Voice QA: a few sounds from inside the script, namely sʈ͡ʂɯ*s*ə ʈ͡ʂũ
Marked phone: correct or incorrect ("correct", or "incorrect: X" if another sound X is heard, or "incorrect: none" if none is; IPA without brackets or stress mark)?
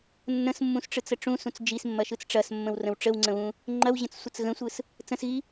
incorrect: t͡s